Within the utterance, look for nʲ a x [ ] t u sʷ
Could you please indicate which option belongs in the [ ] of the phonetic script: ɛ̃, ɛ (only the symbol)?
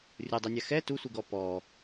ɛ